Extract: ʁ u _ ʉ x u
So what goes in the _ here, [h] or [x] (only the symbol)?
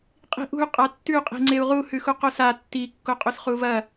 h